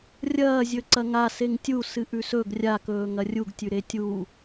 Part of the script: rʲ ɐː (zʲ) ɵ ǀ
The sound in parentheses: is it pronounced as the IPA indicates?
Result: yes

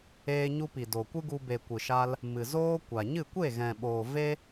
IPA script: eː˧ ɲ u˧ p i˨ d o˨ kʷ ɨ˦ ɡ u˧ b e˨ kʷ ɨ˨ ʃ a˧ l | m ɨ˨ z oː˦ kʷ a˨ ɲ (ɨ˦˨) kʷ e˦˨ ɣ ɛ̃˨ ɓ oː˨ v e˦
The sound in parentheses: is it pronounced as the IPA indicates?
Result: yes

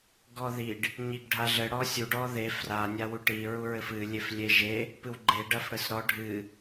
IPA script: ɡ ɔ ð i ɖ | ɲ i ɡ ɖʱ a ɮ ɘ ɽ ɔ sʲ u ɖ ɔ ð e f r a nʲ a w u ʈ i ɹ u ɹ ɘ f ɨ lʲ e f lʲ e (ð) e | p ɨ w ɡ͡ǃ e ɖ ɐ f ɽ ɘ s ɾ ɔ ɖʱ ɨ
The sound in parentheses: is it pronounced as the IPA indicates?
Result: no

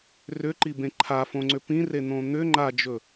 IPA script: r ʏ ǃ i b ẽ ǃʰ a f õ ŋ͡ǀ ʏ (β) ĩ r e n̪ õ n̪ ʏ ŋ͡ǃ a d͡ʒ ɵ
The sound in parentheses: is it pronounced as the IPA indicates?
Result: no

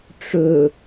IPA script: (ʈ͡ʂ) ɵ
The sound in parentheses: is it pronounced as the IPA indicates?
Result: yes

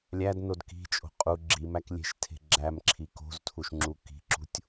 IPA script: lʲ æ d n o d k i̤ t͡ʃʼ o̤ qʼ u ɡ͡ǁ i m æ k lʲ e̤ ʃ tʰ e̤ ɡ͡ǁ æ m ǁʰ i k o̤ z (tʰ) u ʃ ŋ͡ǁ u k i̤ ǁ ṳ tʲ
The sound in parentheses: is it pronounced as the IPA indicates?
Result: yes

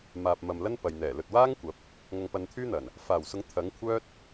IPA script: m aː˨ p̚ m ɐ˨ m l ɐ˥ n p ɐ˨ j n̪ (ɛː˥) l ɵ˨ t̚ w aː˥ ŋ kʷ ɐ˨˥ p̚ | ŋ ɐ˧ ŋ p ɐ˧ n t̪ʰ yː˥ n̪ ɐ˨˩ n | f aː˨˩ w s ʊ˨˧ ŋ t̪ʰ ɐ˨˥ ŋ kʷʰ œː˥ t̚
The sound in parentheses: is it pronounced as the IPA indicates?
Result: no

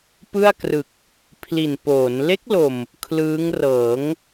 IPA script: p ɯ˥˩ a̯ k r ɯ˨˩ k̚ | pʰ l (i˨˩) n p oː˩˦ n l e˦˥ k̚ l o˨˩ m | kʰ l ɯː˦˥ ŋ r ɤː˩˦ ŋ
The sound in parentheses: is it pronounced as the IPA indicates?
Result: yes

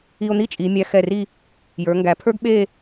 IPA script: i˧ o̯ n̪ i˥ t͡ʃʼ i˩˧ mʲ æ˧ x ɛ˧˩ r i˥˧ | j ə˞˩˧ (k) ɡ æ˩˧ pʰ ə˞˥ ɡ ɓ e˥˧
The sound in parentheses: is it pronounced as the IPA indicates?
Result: no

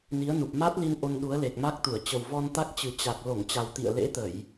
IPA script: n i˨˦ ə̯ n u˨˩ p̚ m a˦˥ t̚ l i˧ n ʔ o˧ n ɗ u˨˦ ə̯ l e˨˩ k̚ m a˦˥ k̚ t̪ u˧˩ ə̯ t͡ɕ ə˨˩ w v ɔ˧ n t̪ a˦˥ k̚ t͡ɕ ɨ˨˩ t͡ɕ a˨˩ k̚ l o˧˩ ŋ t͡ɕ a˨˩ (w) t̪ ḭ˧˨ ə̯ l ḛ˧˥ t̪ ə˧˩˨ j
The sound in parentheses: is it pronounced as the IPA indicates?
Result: yes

